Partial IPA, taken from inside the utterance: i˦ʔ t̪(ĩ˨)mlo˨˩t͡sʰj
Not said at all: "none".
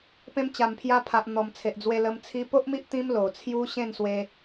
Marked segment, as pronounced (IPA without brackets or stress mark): ĩ˦